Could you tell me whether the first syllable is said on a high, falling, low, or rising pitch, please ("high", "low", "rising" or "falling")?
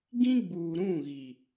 high